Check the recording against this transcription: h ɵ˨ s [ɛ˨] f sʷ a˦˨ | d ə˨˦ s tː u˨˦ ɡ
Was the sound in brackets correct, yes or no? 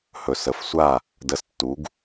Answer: no